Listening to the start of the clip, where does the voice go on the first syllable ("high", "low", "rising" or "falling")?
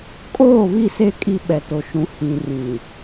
falling